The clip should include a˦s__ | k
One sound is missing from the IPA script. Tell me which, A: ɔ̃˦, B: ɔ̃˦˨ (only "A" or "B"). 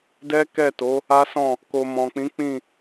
B